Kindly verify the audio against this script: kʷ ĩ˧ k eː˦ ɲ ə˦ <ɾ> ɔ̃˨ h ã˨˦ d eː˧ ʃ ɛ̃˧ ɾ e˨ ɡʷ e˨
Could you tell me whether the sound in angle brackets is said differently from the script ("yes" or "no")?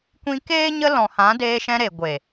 yes